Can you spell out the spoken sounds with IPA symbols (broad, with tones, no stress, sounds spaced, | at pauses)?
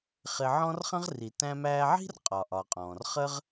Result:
χ ɪ˧ ʕ ɔ̃˥ r χ ə̃˥ ʁ r i˩ t æ̃˧ m æː˧ ʕ i̤˥ r qʼ ɒ˩ ʔ ɒ˩ qʼ ɔ̃ː˩ r χ ə˥ ʁ